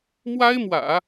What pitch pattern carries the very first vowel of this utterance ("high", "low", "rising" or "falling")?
high